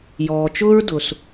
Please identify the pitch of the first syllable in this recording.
low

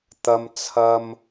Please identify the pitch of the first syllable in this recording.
high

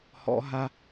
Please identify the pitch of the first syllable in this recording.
high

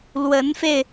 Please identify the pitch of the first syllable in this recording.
rising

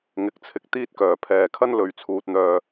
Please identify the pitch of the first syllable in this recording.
rising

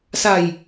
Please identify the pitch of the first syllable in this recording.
low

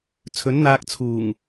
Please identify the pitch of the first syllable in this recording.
rising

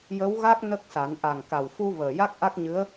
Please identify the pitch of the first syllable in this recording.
rising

